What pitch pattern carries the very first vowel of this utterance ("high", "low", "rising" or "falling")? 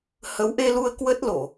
rising